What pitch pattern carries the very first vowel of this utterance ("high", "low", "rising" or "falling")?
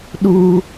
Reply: high